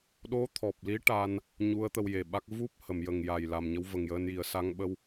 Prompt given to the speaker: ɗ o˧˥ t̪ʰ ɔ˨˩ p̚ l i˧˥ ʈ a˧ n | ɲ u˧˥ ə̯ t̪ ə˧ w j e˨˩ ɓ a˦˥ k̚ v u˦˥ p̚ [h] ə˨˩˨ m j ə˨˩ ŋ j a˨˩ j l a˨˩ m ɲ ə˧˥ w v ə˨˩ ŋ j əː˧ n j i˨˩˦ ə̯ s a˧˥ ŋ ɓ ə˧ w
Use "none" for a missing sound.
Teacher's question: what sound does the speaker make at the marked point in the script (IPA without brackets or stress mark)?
h